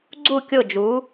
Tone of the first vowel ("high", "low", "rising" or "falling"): falling